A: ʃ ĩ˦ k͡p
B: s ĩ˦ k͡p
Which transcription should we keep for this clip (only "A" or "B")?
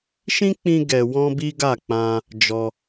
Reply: A